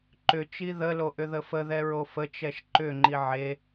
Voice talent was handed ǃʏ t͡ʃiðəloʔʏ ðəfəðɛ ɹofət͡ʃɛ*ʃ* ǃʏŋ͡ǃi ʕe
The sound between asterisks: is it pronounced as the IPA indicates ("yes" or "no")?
yes